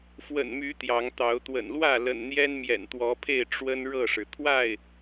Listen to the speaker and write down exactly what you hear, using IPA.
f w ə̰˨˩ n m y˨˦ t̪ j ɑ˨˦ ŋ t̪ ɑ˨˦ ʊ̯ t̪ w ə̰˨˩ n l w ä˥˨ l ə̰˨˩ n n̪ j ɛ˦ n m j ɛ̰˨˩ n t̪ w ɔ˨˦ pʰ e˥˨ ɪ̯ ʈ͡ʂ w ə˦ n ɻ ɤ˥˨ ʂ ɻ̩˩ t̪ʰ w a˥˨ ɪ̯

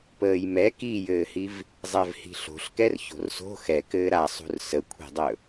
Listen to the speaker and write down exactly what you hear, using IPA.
p əː j m ɛ k i j ɘː h i v | zˤ ɛ v h i̤ ɬ o̤ ɬ k ɛ r ç o̤ r s o̤ x ɛ k ɘː ɾ a sˤ ṳ r s ə kʷʰ i̤ dˤ ɵ

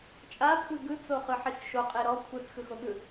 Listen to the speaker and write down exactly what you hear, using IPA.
t͡ʃʼ a kʷʰ ɯ ɡ ɯ t͡s o χ ɯ ħ i x ʃ o qʼ e ɾ ɔ kʷʰ ɯ t͡s x ɯ x o ɠ ɯ

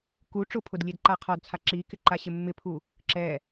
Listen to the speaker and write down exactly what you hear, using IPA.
k u ʈ͡ʂ ʊ pʰ ʊ d lʲ e d ǃ a qʰ ɔ d t͡sʰ a ǁ i k ɪ ǃ a ɕ ɪ mː ɪ pʰ u | ǁ ɛ

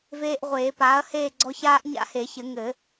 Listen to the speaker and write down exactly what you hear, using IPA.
v eː˨ ʔ ʁʷ eː˨˩˦ p aː˩˥ ɐ̯ h eː˥˨ ɡ͡ǀ ɔ˦˥ ç aː˦˥ ʔ ɲ a̰˦˥ h e˨˩˦ ç ɘ˨˩˦ ŋ ɘ˨˩˦

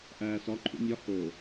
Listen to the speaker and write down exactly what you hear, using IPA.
ʔ æː s ɒ ǃʰ ṵ mʲ ɒ h o

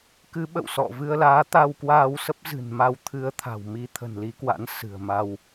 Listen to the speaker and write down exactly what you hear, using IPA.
k ɨ˨˦ ɓ ə̰˧˨ w s ɔ̰˧˨ v ɨ˧ ə̯ l aː˨˦ t̪ a˧ w k w aː˧ w s ə˦˥ p̚ z ɨ̤˨˩ n m a˧ w t̪ʰ ɨ˧ ə̯ t̪ʰ a̤˨˩ w m i˧ t̪ʰ ə̤˨˩ n l i˨˦ k w a̰˧˥ n s ɨ̤˨˩ ə̯ m a˧ w

